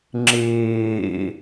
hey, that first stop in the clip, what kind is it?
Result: click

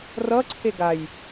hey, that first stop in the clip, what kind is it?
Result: click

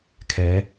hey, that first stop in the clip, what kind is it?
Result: aspirated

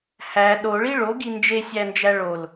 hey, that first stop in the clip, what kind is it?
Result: implosive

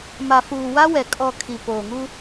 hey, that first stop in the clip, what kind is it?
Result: ejective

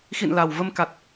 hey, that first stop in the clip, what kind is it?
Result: plain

